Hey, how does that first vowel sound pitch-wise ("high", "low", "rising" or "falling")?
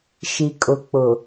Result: low